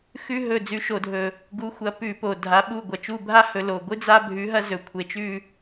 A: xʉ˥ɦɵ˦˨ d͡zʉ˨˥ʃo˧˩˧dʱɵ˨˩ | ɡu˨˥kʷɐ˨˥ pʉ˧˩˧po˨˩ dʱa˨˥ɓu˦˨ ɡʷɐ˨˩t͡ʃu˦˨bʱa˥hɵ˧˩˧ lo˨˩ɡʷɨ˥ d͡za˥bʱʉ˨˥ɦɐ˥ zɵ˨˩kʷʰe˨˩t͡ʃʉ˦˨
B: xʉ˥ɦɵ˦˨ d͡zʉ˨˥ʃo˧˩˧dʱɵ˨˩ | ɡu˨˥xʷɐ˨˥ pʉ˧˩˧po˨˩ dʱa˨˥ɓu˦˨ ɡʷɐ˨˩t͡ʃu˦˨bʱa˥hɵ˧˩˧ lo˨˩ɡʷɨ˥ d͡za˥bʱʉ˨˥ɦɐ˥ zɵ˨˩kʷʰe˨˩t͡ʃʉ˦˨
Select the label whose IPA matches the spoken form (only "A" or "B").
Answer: B